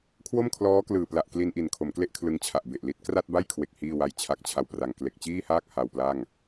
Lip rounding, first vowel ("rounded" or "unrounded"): rounded